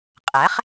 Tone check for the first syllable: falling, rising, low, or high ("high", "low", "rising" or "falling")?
rising